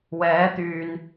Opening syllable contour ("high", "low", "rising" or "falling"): rising